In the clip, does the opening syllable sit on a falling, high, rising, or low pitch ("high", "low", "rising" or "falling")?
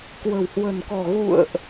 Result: low